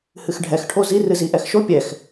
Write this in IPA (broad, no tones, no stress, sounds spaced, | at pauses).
h ɨ x ɖʱ ɛ x ʈʰ o z i r ɨ z i ʔ ɛ x ʃ o pʲ ɛ x